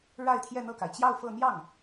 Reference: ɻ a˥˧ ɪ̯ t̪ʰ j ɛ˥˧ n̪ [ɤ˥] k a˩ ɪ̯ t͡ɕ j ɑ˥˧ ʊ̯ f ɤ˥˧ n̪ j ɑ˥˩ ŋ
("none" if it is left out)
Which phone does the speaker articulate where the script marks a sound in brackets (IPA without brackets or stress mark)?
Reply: ɤ˥˩